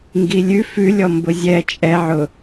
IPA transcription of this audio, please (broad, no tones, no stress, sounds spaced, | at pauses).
ŋ ɡ i lʲ ʉ f ʉ lʲ ɔ m b ʊ zʲ ɛ t͡ʃʼ ɛ ʕ ʊ